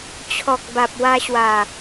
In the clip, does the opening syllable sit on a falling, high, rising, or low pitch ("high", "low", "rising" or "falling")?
low